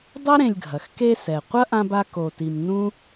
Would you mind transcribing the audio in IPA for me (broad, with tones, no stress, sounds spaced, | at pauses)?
dˤ ɐ˥ ɾ ẽ˨ lʲ ɡʱ ɐ˩ x k e˦ s ɛ˩ qʷ ɐ˥ ʔ ã˦ b a˦ k o˨ t i˨ m n ũ˥